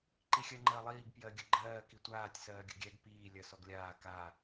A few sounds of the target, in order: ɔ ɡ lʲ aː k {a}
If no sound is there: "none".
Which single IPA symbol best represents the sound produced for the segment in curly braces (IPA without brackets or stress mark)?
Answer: a